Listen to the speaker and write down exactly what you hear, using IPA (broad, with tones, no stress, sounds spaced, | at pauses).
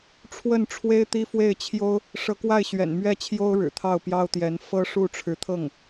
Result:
ʈ͡ʂʰ w ə˥˩ n ʈ͡ʂʰ w e˥ ɪ̯ t̪ i˥ f w e˥˩ ɪ̯ t͡ɕʰ j o˥ ʊ̯ | ʂ ɤ˧˥ k w a˥˩ ɪ̯ ɕ ɥ ɛ̰˨˩ n m ɥ ɛ˥˩ t͡ɕʰ j o˥ ʊ̯ ɻ ɻ̩˨˩ t̪ʰ ɑ˥˩ ʊ̯ p j ɑ˥ ʊ̯ t̪ j ɛ˧˥ n f ɤ˥ ʂ u˥˩ ʈ͡ʂʰ ɻ̩˧˥ t̪ʰ ɤ˥˩ ŋ